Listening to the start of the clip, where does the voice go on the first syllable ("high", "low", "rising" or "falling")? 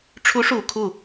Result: rising